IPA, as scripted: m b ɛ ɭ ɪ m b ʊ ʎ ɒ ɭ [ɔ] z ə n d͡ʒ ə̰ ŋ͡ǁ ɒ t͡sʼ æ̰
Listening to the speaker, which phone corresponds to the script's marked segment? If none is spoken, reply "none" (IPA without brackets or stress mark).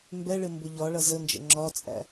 ʌ